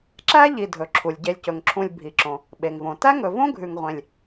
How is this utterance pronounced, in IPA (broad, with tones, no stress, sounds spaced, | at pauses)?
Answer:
ǁ æ˥ ʎ i˨ dʱ ɵ˩ ǁʰ u˩ lʲ ɟ e˨ lʲ c ɵ˩ ŋ ǁʰ ũ˨ lʲ bʱ i˩ ǁ õ˩ | ɓ e˩ ŋ v õ˩ t æ˥ ŋ ɵ˨ v õ˥ ɡʱ ʉ˨ ŋ ʁʷ ẽ˨ lʲ